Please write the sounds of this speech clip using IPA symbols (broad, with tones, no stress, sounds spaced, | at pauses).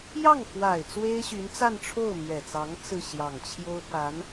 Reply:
j ɑ˥˩ ŋ x w a˨˩ ɪ̯ t͡s w e˥ ɪ̯ ɕ y˧˥ n t͡s a˥˧ n ʈ͡ʂʰ o˥˩ ʊ̯ m ɥ ɛ˨˩ t͡s ɑ˧˥ ŋ t͡s ɹ̩˥˩ ɕ j ɑ˨˩ ŋ t͡ɕʰ j o˥ ʊ̯ p a˧˥ n